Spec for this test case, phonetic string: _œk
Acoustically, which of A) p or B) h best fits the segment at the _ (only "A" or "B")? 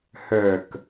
B